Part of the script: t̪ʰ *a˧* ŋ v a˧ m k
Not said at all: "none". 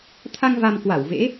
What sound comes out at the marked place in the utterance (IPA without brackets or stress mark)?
a˧